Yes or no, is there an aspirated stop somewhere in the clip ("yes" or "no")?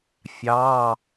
no